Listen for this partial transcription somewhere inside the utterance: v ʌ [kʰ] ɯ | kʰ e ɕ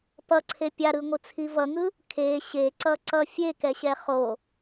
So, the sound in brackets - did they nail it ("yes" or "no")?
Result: no